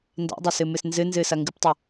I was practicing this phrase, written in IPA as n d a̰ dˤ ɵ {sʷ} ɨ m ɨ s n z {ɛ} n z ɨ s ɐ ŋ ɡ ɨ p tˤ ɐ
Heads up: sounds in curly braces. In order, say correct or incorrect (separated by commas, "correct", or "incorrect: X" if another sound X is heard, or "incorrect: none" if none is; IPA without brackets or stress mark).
incorrect: s, incorrect: ɨ